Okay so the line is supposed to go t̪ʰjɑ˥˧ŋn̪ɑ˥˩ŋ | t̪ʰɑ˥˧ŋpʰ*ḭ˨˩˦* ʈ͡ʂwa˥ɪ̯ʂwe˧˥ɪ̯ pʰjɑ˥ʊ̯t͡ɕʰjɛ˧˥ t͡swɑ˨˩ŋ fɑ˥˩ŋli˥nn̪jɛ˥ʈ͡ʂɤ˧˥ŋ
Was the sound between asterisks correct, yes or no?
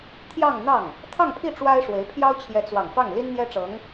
no